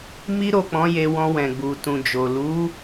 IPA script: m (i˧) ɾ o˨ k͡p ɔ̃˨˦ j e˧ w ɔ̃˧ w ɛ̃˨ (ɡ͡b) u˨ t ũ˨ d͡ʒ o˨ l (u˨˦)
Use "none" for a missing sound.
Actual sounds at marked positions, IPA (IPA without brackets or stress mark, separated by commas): i˧, ɡ͡b, u˨˦